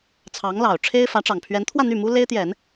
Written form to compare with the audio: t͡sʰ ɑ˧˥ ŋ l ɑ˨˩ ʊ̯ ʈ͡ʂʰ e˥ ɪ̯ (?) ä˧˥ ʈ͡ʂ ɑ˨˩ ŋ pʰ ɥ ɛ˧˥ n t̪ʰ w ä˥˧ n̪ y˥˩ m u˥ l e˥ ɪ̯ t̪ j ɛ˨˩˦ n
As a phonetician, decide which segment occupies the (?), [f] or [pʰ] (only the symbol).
f